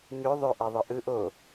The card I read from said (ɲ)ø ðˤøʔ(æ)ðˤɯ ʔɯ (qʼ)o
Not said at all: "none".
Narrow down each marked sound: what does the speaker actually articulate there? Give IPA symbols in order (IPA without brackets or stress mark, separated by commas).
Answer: ɲ, æ, ʔ